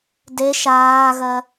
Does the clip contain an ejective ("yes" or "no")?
no